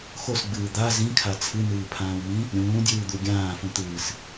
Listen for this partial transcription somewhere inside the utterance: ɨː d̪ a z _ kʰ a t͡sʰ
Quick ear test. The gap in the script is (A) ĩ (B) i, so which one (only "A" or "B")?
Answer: A